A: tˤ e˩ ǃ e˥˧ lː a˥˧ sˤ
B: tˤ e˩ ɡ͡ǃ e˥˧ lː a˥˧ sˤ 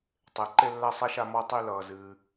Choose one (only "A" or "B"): A